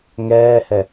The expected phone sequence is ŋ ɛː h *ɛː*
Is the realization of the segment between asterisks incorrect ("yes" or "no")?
yes